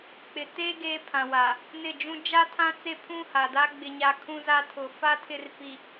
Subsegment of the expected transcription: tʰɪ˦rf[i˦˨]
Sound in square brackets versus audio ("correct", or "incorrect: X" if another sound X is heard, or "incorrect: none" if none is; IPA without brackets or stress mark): incorrect: i˨